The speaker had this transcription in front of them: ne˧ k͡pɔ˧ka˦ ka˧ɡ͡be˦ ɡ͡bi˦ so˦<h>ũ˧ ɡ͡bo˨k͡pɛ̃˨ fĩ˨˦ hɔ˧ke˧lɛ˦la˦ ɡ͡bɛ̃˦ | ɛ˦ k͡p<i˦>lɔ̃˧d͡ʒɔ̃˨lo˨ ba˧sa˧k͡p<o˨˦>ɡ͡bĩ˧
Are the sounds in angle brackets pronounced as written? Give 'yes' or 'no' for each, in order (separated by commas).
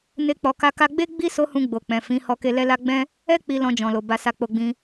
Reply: yes, no, no